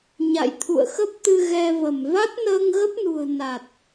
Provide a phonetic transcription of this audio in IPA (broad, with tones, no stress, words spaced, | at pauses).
ɲa̰˧˨jt̪ʰṵ˧˨ə̯xə˦˥p̚t̪ɨ˧ ɣɛ˧və˧˩m va˦˥t̚nəː˧ŋɣə˦˥p̚nṳ˨˩ə̯ na˨˩t̚